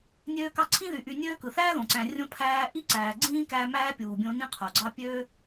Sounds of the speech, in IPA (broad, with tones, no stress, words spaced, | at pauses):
nʲøː˦kɑ˦ǀʰĩ˥ðy˨ ʔy˨nʲøː˦kɯ˩ θæː˥ðõ˩ǀæ̃˨ rʲõ˦ pʰæː˦ʔi˥ ǀæː˨ɡ͡ǀĩː˥kæ˦ mæː˥pʲuː˨bʲõ˦ nĩ˥qʰo˩ɡ͡ǀɑ˥ pʲøː˥